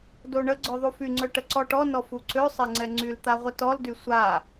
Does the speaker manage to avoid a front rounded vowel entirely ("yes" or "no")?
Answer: no